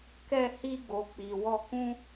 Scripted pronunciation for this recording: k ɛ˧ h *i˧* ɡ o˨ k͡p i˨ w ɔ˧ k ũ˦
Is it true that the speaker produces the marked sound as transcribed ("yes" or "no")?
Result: yes